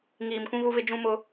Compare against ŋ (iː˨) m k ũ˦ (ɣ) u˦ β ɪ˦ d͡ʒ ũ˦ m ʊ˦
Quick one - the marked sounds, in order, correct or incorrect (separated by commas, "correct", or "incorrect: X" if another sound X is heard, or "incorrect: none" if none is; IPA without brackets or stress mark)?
correct, correct